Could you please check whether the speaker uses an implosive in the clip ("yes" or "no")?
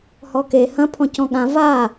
yes